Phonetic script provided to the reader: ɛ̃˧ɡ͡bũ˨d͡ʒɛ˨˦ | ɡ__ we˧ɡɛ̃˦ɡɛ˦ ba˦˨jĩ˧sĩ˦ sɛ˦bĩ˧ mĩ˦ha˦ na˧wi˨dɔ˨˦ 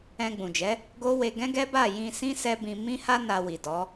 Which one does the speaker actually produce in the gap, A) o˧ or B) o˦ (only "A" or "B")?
B